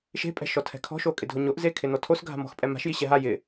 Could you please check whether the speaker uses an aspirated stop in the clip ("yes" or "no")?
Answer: yes